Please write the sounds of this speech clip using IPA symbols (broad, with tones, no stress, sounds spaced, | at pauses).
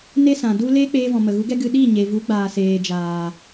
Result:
n e˦ s ã˨ d u˧ l eː˦ k͡p eː˧ v ɔ̃˨ m ə˨ ɣ u˨˦ ɡ ɛ˦ ɡ ɨ˧ ɗ i˦˨ ɲ e˨ v u˨˦ ɡ͡b aː˨ s eː˨ d͡ʒ aː˨